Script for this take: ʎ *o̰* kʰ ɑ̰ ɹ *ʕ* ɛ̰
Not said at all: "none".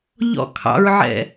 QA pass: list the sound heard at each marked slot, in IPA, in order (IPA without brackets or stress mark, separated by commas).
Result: ɔ̰, ʕ